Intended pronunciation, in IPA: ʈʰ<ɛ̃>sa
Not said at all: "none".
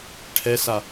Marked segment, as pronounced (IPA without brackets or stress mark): ɛ